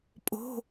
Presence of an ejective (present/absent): present